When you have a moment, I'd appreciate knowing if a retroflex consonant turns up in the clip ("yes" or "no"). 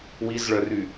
yes